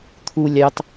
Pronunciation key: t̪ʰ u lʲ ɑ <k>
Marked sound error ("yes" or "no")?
yes